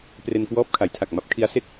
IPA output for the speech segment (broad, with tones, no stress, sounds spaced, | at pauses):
p r e˧ n k w ɔː˦˥ p̚ kʰ a˩˦ j tʰ a˨˩ k̚ m a˦˥ p̚ kʰ i˦˥ a̯ s e˥˩ k̚